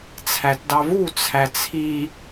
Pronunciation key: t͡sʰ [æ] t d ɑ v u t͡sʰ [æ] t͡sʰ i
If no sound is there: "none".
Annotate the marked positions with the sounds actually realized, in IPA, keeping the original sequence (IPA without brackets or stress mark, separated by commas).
æ, æ